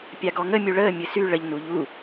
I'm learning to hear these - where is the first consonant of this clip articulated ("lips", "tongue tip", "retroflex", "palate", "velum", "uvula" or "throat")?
lips